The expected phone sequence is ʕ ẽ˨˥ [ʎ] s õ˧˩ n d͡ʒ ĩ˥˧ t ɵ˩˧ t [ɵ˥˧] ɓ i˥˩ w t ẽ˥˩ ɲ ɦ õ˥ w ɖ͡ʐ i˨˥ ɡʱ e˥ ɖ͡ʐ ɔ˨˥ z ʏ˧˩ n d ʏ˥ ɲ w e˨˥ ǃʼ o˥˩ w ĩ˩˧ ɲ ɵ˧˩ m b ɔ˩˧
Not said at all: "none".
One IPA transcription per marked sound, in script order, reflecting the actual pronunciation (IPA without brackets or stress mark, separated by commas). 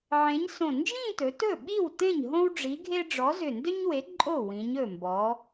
ɲ, ɵ˥˩